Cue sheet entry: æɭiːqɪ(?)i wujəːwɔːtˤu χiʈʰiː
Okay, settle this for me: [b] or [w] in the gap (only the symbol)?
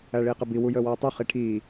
b